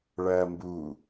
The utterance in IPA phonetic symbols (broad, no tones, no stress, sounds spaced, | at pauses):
ɭ ɐː m b u